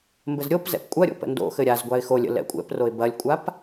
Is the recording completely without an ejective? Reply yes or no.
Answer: no